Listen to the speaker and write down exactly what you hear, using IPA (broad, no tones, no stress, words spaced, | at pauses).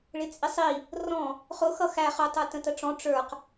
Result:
ɭɪt͡sʼɪsˤi | rɔ̃ | χʊ xʌxæ χʊ tˤə˞tə̃təʈ͡ʂɔ̃ ʈ͡ʂə˞q